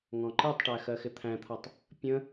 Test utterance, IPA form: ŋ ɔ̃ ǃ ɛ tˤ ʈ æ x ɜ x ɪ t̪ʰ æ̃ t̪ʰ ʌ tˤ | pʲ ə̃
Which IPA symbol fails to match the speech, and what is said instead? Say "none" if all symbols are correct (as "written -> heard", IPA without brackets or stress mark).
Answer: none